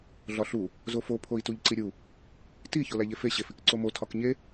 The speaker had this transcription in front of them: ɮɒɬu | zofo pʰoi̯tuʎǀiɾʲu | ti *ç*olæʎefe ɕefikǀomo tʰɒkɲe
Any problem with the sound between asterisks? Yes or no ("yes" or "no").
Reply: no